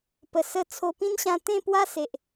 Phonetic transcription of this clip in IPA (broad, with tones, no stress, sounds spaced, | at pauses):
p ə˨˩ s ə˧ t͡sʰ o˧ p ĩ˦ n ɕ ã˧ t̪ ẽ˥˧ p w a˦ s e˨ ʔ